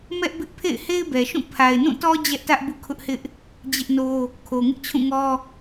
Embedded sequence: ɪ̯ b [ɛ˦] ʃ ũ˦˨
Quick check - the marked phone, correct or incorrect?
incorrect: ɛ˨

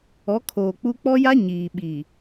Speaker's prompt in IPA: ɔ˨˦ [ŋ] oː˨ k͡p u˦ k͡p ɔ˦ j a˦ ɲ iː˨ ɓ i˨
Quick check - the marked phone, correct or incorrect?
incorrect: kʰ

